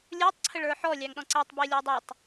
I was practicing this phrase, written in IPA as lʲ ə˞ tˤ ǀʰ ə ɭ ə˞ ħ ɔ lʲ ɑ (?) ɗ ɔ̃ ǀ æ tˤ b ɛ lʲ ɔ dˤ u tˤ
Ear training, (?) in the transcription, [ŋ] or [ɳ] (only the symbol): ŋ